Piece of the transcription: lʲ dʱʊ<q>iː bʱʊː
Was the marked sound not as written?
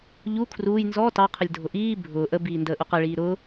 yes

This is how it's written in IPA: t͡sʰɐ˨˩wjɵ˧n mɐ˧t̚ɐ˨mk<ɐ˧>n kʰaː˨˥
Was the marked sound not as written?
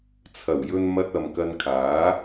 no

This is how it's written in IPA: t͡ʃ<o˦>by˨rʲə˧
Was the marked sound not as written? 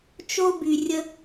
no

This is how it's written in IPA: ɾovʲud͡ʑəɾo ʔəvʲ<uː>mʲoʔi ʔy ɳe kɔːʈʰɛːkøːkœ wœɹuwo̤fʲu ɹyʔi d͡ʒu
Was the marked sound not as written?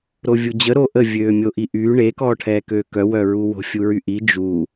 yes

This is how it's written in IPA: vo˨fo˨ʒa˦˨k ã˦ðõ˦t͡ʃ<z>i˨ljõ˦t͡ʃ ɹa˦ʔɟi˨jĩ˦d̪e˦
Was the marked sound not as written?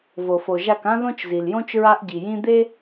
no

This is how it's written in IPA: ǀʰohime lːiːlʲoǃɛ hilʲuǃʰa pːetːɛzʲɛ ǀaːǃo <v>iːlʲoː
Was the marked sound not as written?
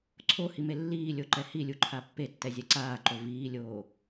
no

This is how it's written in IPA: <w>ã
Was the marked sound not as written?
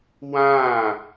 no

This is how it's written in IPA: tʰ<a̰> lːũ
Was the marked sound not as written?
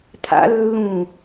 no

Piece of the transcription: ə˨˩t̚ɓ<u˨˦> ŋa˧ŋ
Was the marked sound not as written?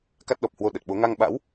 yes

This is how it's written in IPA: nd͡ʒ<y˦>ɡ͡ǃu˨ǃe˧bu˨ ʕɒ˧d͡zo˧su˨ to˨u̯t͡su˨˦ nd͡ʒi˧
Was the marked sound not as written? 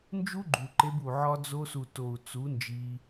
yes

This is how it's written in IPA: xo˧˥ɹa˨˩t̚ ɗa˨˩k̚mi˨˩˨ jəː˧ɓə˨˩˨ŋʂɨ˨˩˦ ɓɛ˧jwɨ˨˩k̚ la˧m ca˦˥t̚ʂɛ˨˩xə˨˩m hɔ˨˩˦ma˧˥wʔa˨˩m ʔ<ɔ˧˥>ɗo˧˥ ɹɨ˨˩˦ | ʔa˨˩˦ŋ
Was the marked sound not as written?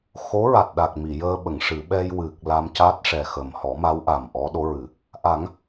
no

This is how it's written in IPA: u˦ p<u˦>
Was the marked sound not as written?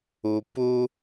no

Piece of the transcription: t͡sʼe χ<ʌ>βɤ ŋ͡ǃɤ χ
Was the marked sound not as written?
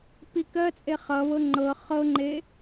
no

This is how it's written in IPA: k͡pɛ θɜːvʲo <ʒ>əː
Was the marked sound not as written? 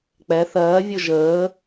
no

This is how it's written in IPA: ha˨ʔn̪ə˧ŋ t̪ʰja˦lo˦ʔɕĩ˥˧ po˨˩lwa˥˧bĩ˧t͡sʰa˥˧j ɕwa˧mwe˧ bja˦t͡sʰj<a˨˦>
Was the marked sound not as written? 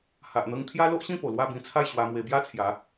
no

